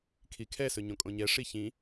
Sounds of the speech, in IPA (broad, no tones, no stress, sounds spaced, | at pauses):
kʰ i kʰ ɛ s ɵ ɲ õ kʼ õ ɲ ɛ ʂ i ç ĩ